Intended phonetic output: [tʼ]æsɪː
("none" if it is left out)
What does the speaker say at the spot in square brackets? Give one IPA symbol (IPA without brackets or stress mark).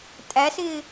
tʼ